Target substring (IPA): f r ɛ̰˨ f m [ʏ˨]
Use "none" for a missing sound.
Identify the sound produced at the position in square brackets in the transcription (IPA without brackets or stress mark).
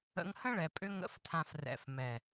ɛ˨